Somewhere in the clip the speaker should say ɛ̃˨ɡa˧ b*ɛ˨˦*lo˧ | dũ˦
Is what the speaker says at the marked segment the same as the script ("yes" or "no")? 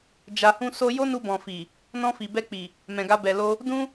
no